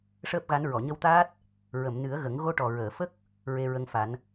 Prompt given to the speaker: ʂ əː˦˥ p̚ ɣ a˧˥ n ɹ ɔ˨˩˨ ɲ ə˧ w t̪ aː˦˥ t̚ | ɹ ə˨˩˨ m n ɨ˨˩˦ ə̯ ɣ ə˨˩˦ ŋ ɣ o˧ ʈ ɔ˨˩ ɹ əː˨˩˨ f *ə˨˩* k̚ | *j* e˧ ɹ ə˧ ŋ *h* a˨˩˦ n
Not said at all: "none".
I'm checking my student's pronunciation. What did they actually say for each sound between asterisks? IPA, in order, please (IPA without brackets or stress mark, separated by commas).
ə˦˥, ɹ, f